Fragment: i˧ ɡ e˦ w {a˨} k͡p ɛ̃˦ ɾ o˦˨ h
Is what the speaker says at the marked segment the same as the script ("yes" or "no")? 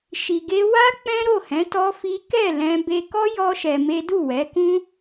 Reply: no